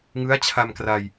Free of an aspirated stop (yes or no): no